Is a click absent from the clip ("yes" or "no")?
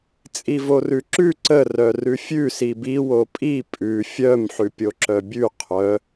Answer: no